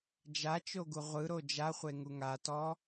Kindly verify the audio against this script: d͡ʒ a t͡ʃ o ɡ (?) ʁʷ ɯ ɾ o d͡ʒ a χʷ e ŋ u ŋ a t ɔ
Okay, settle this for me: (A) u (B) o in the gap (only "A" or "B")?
A